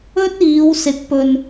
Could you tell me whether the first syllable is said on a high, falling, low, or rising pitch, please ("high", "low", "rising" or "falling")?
high